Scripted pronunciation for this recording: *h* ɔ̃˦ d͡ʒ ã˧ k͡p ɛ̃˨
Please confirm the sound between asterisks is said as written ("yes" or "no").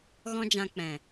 no